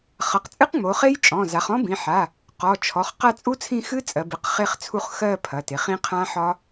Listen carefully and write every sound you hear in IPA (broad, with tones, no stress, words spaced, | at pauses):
χɐ˩˧˩q t͡sʼɨ˦˥qŋ͡mo˩˧χe˦˥jt͡ʃʼɔ̃˩˧˩ za˩˧χɔ̃˦˥bĩ˩˧˩ħa˩˧˩ | qɔ˩˧˩t͡ʃʰɔ˩˧˩χ qa˦˨t͡sʼu˦˥t͡sʰĩ˦˨ xɨ˦˥t͡sʼɜ˩˧bɨ˩˧˩q χe˦˨χt͡sʰu˦˨χ xɜ˦˨ pʰɐ˩˧˩te˩˧χ ĩ˦˥ qʰã˦˥ħɒ˦˥